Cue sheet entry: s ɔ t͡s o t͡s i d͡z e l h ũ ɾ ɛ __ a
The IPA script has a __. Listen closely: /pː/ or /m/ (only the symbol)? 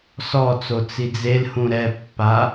pː